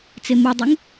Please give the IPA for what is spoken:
t͡s e m u dˤ u ŋ

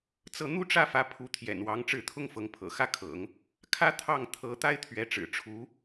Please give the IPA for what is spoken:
t͡s ɤ˥˩ n̪ u˥ ʈ͡ʂ ä˥˩ f ä˧˥ pʰ u˧˥ t̪ʰ j ɛ̰˨˩ n w ɑ˧˥ ŋ ʈ͡ʂ ɻ̩˥˩ t̪ʰ ʊ˥ ŋ f ɤ˧˥ ŋ pʰ ɤ̰˨˩ x ä˥˩ kʰ ɤ̰˨˩˦ ŋ | kʰ ä˥ t̪ʰ ɑ˥˩ ŋ t̪ʰ ɤ˧˥ t̪ a˥ ɪ̯ t̪ʰ ɥ ɛ˧˥ ʈ͡ʂ ɻ̩˨˩ ʈ͡ʂʰ u˧˥

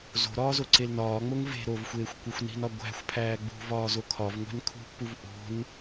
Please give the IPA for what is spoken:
z o̤ ɾ ɒː z o ǀ e l n ɒː ŋ͡m o ŋ v e̤ ɾ o v xʷ eː xʷ kʷ e xʷ n i̤ n ɒ ɡʷ æ̤ xʷ pʰ æː ɡ͡b ṳ v ɒː z o kʰ ɒ v ŋʷ æ̤ n kʰ ṳ pː u v ʔ o̤ n

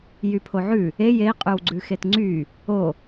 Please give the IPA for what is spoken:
j y pʰ o ʕ ʉ | e j e i̯ qʼ ʉ w ɡ͡ǀ ʉ x e t ŋ͡ǀ y | o

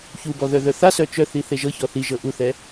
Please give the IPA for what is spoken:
ç u b ɔ ð œ ð œ θ a s œ t͡ʃ œ θ i θ e ʒ ɤ ç ɔ θ i ʒ ɤ ʔ u θ ɛ

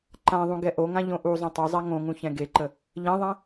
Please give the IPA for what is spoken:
ǃ ã ðˤ ũ ɡ ɛ ʔ o ŋ ã ʎ õ ʔ u zˤ õ tˤ ø zˤ a ŋ õ ŋ ũ ç ɛ̃ ɡ e ǃ ə | ʎ ɛ̃ ðˤ ɛ̃

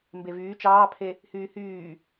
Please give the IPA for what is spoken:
m b e v yː t͡ʃ ɑː pʰ e | h yː h yː

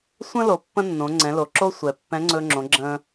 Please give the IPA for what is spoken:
sʷ ə̃˥ l o˩˧ pː ə̃˥ nː õ˩˧ ŋ͡ǀ ɛ̃˩˧ l o˩ ǁ o˥ sʷ ɛ˩ pː ɛ̃˧˥ ŋ͡ǀ ɵ˧ ŋ͡ǁ õ˩˧ ɡ͡ǁ ə̃ː˧

